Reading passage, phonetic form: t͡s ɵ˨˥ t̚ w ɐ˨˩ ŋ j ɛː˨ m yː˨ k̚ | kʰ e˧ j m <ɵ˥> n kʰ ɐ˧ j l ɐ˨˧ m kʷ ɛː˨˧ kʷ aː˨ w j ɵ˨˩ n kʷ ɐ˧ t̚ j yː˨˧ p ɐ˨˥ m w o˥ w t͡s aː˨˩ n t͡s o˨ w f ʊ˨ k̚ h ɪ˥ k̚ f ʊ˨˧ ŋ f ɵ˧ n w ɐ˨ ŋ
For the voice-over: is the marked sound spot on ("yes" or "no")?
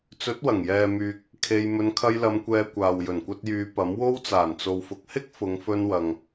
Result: no